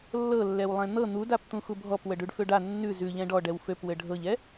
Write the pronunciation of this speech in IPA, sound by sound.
lː ɤ lː ɛ w lˠ ɛ̃ n̪ ɤ n̪ u d a p t̪ ũ x u bʱ ɔ p w ə ɖ ʉ ɖ f ø ɖ a nː ʉ z ʉ ʎ ɛ̃ ɖ ɔ ɖ ɛ w f ø p w ɘ ɖʱ ɤ ʎ ɛ

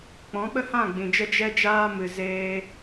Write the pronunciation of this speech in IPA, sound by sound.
k͡p ɔ̃˨˦ ɓ ə˦ h ã˦˨ ɡ͡b ĩ˨ d͡ʒ ə˦ d͡ʒ ɛ˦ d͡ʒ aː˦ m ɨ˨ z eː˦

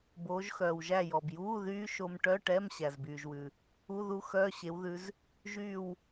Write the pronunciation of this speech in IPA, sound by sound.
b oː˨˦ ʒ x œː˩ w ʒ æ˥˨ j ɔ˩ b j uː˧˥˧ ð yː˦˥ ʃ o˦˥ m ʈ œ˧˥˧ ʈ ɛ˧˥˧ m ɕ æ˩ z b yː˩ ʒ w ʉ˩ | u˧˥˧ ð u˦˥ x œː˧˥˧ ɕ e˨˦ w ð ʉ˨˦ z | ʒ yː˥˨ w

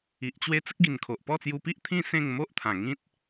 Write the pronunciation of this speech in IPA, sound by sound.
i˨ ʔ t͡ɕ w e˦ t͡s ə˦ k̚ ɡ i˨˩ n kʰ o˨ ʔ p ɔ˥˧ t͡s j u˧ p i˦ ʔ t̪ʰ ĩ˥˧ s ẽ˥˧ ŋ m o˦ ʔ t̪ʰ ã˨˩ ŋ ĩ˦ t̚

